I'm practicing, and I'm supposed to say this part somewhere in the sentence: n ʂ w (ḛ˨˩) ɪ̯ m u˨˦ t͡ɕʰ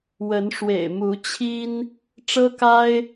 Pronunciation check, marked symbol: correct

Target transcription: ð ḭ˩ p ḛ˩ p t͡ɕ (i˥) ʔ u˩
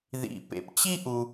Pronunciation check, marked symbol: correct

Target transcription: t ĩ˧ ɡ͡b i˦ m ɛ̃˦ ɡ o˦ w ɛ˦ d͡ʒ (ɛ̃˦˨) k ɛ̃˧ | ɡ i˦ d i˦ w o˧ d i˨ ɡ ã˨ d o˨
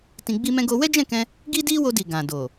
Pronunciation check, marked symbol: correct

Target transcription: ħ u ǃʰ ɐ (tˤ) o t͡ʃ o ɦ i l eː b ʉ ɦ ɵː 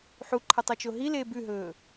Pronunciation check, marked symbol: correct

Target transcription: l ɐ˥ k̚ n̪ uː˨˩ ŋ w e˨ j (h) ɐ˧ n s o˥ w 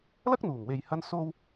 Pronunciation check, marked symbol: correct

